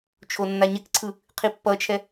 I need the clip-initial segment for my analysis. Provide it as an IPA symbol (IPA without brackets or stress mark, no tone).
t͡ʃʰ